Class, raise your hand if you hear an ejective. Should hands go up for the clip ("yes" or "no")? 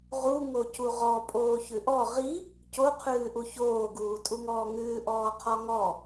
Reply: yes